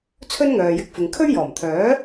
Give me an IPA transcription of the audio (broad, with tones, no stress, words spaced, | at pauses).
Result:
t͡sʰɵ˥nŋœː˨jɪ˧k̚fɪ˨ŋ kʰɵ˥ɥjɔː˨˩mt̪ʰœː˨˥